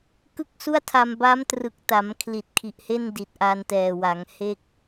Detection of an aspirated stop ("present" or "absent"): present